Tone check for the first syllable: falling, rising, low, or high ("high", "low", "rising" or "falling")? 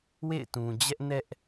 falling